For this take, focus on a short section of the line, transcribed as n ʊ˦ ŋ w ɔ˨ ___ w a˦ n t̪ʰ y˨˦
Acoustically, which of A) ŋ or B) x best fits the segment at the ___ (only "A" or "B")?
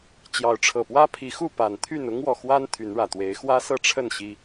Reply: B